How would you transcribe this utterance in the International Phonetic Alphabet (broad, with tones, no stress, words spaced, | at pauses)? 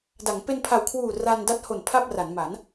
da˩˦ŋ pe˧npʰa˨˩wkʰwuː˨˩ ra˧n da˦˥t̚ho˨˩n pʰa˥˩p̚ra˩˦n ma˩˦n